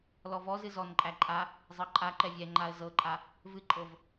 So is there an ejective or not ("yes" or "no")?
yes